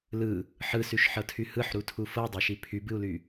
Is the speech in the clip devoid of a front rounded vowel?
no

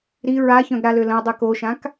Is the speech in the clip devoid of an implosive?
yes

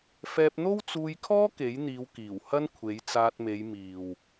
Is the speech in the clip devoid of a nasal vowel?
yes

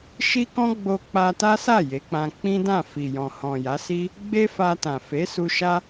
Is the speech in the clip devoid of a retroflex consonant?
yes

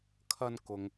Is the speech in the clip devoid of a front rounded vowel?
yes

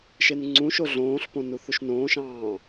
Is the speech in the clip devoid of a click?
no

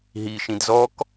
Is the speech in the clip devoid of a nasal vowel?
no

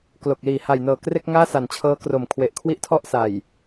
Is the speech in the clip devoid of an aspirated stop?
no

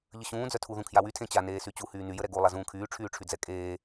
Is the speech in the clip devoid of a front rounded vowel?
no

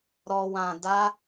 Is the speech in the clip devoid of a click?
yes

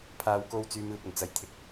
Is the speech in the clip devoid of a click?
yes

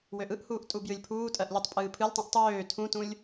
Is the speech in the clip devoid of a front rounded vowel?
no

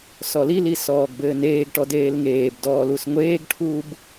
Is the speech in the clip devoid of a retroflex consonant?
no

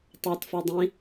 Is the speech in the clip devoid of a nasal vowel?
no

